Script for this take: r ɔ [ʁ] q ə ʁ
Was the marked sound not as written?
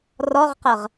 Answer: no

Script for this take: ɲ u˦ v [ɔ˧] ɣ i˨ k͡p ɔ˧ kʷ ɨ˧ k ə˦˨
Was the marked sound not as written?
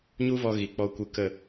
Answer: no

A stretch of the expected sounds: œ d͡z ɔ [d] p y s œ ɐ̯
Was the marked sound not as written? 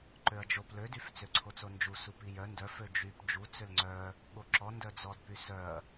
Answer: no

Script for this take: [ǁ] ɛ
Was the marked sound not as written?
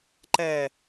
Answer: yes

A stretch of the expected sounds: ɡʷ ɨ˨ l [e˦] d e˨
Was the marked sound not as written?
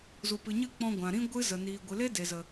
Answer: no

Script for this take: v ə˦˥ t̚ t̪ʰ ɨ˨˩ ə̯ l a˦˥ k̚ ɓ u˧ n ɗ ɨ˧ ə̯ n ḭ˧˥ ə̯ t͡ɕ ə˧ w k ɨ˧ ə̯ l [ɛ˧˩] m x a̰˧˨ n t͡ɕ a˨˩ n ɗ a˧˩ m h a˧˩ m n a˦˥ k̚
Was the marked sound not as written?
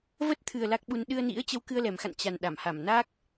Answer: yes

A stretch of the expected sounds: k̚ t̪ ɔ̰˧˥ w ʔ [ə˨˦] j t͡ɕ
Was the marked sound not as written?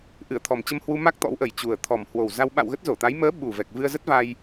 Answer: yes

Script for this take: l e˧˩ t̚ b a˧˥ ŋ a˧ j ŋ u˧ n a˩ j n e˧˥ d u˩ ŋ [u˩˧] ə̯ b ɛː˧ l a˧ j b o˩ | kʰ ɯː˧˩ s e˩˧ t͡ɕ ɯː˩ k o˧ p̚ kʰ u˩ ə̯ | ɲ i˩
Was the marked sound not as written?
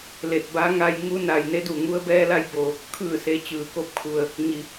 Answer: yes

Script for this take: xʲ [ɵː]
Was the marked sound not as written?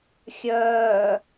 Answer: yes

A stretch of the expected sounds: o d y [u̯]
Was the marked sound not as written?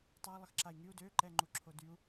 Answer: no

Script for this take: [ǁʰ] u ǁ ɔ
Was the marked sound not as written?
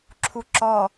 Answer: no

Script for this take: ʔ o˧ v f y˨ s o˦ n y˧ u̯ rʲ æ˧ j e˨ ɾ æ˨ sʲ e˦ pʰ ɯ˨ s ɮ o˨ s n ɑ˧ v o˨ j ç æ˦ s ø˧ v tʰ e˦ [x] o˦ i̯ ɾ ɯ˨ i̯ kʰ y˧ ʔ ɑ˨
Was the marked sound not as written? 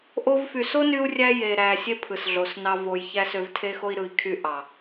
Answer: no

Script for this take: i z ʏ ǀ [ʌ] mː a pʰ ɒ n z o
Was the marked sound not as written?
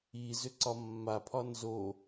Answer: yes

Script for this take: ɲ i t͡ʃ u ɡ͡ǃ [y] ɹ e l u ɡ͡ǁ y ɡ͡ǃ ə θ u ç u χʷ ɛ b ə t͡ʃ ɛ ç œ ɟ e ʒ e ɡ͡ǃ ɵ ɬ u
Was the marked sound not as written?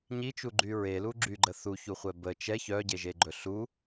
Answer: no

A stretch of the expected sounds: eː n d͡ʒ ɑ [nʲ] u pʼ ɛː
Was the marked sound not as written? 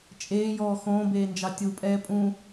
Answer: yes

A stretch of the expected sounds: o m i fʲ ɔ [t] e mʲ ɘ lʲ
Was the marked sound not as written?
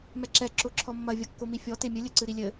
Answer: no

